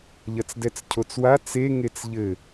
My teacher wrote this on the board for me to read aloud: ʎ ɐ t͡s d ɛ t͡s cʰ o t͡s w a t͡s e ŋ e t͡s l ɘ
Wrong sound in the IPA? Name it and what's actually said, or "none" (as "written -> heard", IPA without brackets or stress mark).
l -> ʎ